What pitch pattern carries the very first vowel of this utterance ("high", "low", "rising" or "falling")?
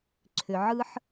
low